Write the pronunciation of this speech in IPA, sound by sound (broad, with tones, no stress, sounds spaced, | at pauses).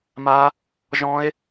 m a˦˥ | ʒ ɔ̃˦˥ e̯